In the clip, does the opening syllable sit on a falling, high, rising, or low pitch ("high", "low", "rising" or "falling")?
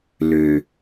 low